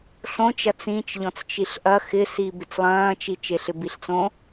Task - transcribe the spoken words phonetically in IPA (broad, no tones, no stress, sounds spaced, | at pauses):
ɬ õ t͡ʃ ɐ t͡s ĩ t͡ʃ ʎ ɔ̃ t͡s t͡ʃ i ɬ ʔ ɐ x ɪ s i b ɪ t͡s lˠ ɐ̃ː t͡ʃ i t͡ʃ e ɬ ɪ b i ɬ t͡s õ